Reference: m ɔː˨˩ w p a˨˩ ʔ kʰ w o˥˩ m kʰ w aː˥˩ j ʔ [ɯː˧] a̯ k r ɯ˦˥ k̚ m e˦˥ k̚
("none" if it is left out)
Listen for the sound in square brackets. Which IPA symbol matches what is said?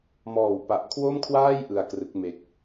ɯ˧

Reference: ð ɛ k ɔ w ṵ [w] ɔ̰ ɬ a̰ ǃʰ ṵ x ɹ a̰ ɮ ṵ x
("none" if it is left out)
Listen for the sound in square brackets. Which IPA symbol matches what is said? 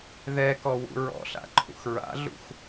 ɹ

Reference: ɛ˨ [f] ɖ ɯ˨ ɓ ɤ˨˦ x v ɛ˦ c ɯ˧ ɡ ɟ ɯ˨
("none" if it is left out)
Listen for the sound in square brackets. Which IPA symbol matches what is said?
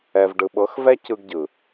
v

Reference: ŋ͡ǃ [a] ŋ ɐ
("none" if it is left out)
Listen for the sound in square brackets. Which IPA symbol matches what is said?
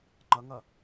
ɐ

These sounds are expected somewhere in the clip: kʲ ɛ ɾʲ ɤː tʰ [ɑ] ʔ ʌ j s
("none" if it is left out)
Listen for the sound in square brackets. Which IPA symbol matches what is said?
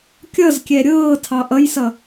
ɑ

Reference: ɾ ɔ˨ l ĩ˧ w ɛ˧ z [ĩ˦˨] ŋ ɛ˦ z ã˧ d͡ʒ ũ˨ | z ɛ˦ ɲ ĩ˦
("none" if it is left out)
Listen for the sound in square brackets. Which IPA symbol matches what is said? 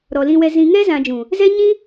ĩ˧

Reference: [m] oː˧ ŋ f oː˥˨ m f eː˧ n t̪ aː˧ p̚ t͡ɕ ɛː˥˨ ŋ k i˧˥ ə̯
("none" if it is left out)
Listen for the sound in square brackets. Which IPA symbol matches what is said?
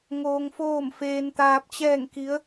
ŋ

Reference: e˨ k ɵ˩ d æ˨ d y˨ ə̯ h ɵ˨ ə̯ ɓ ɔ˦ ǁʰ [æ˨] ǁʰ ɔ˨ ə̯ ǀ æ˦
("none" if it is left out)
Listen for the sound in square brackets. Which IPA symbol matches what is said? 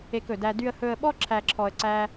æ˨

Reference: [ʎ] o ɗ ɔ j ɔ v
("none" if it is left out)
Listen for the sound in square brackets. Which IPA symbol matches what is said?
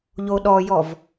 ʎ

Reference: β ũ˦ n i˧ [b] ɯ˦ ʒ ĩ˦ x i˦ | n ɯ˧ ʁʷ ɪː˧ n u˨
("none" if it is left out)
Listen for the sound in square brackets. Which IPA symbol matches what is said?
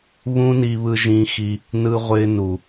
β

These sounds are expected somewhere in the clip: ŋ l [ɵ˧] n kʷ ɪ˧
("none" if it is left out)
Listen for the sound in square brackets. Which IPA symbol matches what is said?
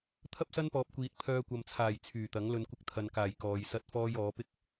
ɵ˧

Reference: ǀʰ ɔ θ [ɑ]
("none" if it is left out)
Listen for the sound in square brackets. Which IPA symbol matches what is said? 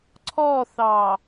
ɑ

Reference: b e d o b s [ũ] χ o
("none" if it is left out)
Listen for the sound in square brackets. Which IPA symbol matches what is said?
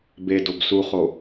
u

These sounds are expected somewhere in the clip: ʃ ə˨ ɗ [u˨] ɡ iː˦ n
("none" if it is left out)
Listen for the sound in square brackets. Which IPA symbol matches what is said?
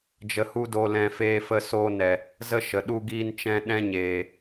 u˦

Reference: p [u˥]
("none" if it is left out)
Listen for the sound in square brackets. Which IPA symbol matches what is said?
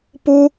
u˥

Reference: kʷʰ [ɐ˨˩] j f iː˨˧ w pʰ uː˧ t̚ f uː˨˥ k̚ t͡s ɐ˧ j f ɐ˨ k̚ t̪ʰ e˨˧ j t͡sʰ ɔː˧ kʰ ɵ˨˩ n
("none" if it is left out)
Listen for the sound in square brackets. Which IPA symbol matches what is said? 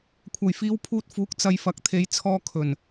ɐ˨˩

